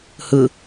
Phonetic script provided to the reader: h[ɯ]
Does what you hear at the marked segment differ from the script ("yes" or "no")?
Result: no